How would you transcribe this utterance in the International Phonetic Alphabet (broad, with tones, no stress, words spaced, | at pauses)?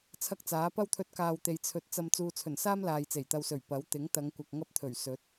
t͡sʰɐ˥k̚t͡saː˨˥ pɐ˥wt̪ʰɵ˧t̚kaː˨wt̪e˨j t͡sʰɵ˧t̚ t͡sɐ˧m t͡suː˨t͡sʰɵ˨˩nsaː˥m laː˨jt͡se˨˩jt̪ɐ˧wsɵ˨˩ɥ pɐ˨˥w t̪ɪ˨˥ŋt̪ɐ˨˧ŋkʷɐ˨k̚ ŋɐ˥p̚t̪ʰɵ˨˩ɥ sɵ˨˥t̚